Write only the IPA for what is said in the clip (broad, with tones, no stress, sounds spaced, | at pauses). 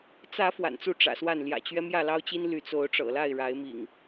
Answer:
t͡s ä˨˦ f w a̰˨˩ n t͡s u˨˦ ʈ͡ʂ ä̰˨˩ s w a˥˨ n l j ä̰˨˩ t͡ɕ ɥ ɛ˦ m j ä˥˨ l ɑ˦ ʊ̯ t͡ɕ i˦ n l y˨˦ t͡s o˨˦ ʊ̯ ʈ͡ʂ ɤ̰˨˩ l a˥˨ ɪ̯ ɻ a˨˦ ɪ̯ m ḭ˨˩ ŋ